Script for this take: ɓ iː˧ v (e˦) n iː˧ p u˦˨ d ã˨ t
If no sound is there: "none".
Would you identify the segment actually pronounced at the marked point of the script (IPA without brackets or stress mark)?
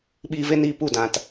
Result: e˦